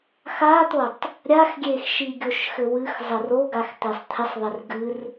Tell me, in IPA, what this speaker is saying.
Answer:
xat̪otˤ | ɾʲaxɡʲexʃi ɡʲoʃxɘwɨx zˤɘroɡax t̪esˤt̪ʰɪsˤðˤɪr ɡɨr

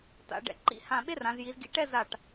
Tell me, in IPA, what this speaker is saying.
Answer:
ta̰˩˧ ɖɛ̰˩˧ǃḭ˧ hã˧˩ɓe˥rã˩˧z ji˩˧zɡḭ˧ʈɛ˥˧za˧˩ʈ

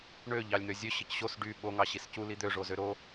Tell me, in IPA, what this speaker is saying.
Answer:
ɳø ʎɑlʲn̪øzʲø ɕɯcɕos ɖy ɓo ŋɑɕiscu lid̪ø ʐozøɾo

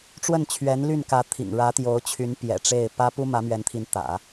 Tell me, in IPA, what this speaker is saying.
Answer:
ʈ͡ʂwə˥˩nt͡ɕʰɥɛ˧˥nly˥˩nkä˧˥ t̪ʰḭ˨˩ŋɻä˧˥t̪jo˧˥ʊ̯ t͡ɕʰy˧˥npjɛ̰˨˩ʈ͡ʂe˥˩ɪ̯ pä˥ pu˥mä˧˥mɥɛ˧˥nt̪ʰi˧˥n t̪ä̰˨˩˦

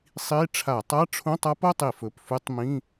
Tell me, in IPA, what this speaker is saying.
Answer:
sˤi˧˥˧ ʈ͡ʂʰa˧˩˧tˤa˧˥˧ʈ͡ʂʰũ˧˥˧tˤ a˦˥po˧˥˧tˤi˧˩˧fɵ˩˧˩p fʉ˦˥tˤ mĩ˧˥˧

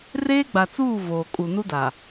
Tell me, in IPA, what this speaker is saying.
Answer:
reː˦ɡ͡ba˨t͡suː˦˨ voː˨kʼu˨nu˦da˨

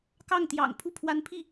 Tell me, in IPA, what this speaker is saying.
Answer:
kɑ˥˩ŋt̪jɑ̰˨˩ŋ pʰu˥˩pʰwa˧˥npʰi˥˩

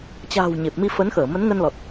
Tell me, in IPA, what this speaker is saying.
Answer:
t͡ɕa̤ː˨˩w ɲe˨˩p̚mi˧ fə˨˦nxəː˧˩ mə˨˦nŋə˧nlɔ˨˩t̚

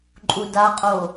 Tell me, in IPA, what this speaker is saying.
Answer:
ǃʼudaqʼo

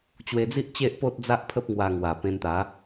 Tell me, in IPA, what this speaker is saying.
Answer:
t͡ɕwe˧d͡zi˦ʔt͡ɕe˦ʔ po˦t̚d͡za˦ʔpʰə˦p̚ ŋwa˧ ŋwa˨˩pẽ˧nt̪a˨˦

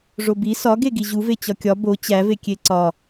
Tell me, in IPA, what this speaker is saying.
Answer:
ʐobi sɒɡeɡi ʑuve t͡ɕɒkʲɒ bo t͡ɕævekʲe ǀɒ

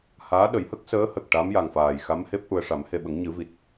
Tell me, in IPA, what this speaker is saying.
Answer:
haː˧˥ɗə˨˩˦j hə˦˥k̚ səː˧˥hə˨˩k̚ ʈa˧˥mja˨˩ŋfaː˨˩jxa˧˥m he˦˥p̚ ʔu˨˩ə̯ʂa˨˩˦mhe˨˩ɓə˨˩˦ŋ ɲɨ˨˩˦vi˨˩t̚

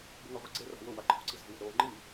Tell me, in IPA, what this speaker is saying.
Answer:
buŋaʁʷiɡ͡ǀe ra̤wʊ waǃʰo̤ǀizɔ̤ wɛ̤ɾoːŋ͡ǃi

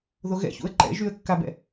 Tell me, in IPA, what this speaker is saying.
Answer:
ðoɣɛ̰çṵə̯ ǃɛ̰ʒyə̯kːabɛ̰

